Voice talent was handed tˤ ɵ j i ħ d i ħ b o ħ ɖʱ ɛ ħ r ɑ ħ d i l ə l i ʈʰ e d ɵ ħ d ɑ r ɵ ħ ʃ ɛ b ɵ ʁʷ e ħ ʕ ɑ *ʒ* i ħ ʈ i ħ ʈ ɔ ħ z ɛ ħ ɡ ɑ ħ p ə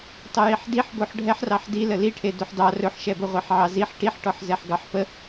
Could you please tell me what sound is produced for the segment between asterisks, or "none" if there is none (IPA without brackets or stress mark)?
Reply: z